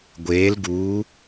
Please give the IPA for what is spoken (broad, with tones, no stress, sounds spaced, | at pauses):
ɡʷ eː˧˥ l ɡ uː˧˥